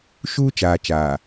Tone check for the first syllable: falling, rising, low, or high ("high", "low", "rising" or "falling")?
high